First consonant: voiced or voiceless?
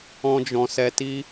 voiced